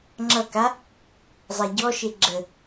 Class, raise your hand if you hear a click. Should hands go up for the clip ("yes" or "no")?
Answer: yes